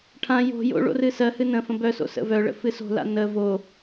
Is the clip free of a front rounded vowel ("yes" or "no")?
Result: no